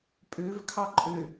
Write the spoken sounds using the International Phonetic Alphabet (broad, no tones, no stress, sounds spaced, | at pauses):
pʼ ø v kʰ ɑ ǃʼ ø